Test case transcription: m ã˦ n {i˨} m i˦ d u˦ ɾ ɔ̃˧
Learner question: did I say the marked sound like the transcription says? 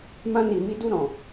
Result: no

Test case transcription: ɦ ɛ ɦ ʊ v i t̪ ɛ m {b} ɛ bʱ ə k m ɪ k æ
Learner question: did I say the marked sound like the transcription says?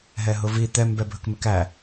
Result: yes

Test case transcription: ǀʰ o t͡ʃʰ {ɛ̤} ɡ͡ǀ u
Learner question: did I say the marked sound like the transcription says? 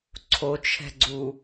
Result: yes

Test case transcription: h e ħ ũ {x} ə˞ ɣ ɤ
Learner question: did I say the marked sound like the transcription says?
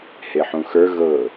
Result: yes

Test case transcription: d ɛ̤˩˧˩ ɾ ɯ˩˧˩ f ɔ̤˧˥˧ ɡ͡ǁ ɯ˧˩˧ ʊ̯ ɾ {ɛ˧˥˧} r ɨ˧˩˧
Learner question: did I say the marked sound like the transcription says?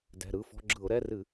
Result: yes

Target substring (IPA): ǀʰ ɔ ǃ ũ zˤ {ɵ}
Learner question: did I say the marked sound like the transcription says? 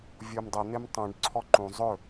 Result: yes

